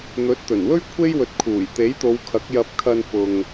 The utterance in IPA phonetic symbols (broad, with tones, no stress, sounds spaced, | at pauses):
n̪ ɵ˨˥ t̚ t̪ ɵ˨˩ n w ɵ˥ ɥ kʷʰ e˥ j w ɵ˨ t̚ kʰ uː˨˩ j t̪ e˨˥ j t̪ o˨˧ w kʰ ɐ˨˥ k̚ j ɐ˧ p̚ kʰ ɐ˧ n f ʊ˨ ŋ